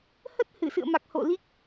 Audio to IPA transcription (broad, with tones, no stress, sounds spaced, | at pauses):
h ə˦˥ t̚ h ɨ˧˩ s ɨ̰˧˨ ə̯ m a˨˩ k̚ h o̰˧˨ l i˦˥ k̚